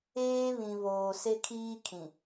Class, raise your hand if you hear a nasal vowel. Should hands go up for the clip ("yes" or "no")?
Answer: yes